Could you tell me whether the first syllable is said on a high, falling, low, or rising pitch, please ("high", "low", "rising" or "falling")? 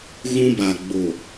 high